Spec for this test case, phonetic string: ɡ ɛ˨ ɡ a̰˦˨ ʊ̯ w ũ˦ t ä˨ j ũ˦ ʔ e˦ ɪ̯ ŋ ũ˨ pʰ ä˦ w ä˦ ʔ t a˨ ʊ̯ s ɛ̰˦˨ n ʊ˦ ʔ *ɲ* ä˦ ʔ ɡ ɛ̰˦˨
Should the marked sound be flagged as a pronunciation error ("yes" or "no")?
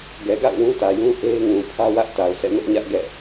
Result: no